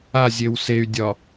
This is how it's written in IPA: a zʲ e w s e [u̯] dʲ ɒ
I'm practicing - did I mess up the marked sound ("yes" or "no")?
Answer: yes